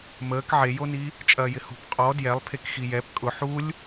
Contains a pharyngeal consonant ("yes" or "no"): yes